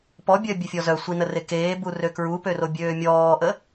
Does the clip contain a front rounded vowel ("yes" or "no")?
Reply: yes